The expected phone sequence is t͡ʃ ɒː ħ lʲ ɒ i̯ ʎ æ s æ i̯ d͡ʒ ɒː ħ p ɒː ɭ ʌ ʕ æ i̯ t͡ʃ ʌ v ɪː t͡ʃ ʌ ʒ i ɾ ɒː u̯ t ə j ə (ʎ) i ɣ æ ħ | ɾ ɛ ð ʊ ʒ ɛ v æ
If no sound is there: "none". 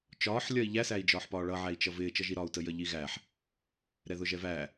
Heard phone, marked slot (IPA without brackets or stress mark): ʎ